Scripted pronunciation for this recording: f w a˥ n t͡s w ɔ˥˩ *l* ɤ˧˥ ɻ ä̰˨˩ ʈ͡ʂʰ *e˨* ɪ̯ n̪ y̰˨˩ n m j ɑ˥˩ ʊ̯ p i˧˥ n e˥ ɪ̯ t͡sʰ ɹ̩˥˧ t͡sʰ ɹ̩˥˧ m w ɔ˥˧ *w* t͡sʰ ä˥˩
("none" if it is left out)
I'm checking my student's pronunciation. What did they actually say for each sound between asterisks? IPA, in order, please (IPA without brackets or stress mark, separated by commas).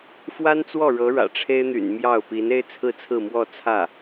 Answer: ɻ, e˥, none